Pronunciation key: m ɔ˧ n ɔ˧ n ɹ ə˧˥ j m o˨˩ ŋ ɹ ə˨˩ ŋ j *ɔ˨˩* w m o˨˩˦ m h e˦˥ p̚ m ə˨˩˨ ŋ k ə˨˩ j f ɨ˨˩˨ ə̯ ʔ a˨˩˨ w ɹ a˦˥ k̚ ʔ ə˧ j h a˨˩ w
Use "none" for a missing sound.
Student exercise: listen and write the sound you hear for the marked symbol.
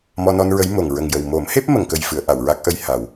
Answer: ə˨˩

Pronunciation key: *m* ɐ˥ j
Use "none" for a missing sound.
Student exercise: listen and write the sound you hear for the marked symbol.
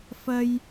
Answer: f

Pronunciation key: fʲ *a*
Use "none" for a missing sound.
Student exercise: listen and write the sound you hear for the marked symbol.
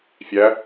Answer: æ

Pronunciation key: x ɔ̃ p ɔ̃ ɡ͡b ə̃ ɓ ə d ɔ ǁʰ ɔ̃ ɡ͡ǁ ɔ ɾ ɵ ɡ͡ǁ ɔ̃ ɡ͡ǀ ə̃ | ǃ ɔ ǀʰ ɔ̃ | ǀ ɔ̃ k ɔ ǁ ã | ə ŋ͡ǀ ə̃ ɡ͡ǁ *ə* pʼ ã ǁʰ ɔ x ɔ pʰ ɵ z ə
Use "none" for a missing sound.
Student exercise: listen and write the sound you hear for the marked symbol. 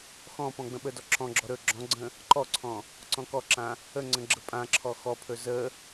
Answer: ə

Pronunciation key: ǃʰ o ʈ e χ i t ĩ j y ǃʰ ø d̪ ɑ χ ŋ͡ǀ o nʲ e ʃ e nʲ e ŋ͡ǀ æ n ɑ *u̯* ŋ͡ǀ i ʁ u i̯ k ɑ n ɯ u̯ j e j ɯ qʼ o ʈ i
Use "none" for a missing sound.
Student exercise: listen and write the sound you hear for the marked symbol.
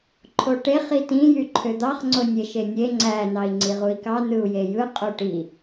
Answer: i̯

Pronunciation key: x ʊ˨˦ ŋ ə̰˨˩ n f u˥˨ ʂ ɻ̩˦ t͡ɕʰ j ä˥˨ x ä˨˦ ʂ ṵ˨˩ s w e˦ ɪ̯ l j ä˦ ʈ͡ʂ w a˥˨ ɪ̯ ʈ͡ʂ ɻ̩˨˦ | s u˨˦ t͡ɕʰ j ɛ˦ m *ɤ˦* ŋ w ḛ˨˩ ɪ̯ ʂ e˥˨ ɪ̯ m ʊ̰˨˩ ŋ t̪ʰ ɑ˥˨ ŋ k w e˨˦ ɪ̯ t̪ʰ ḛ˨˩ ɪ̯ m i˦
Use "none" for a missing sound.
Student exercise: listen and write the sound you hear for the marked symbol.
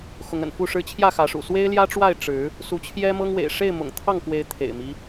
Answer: ɤ˦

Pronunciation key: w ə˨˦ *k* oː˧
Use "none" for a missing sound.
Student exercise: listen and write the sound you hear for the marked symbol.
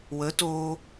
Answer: t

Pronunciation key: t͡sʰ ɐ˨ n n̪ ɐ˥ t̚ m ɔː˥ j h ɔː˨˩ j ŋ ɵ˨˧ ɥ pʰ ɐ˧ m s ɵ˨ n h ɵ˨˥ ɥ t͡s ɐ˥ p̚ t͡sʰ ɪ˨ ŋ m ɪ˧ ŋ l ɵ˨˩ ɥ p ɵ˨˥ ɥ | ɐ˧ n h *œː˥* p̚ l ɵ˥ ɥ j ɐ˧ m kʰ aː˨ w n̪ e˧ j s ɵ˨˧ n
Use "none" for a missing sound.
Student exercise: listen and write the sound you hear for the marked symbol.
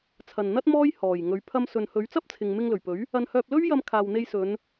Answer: œː˧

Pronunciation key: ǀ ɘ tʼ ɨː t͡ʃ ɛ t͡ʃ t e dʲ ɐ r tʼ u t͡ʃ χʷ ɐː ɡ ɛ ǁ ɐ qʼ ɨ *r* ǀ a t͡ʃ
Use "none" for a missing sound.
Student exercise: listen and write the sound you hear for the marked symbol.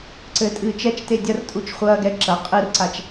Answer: r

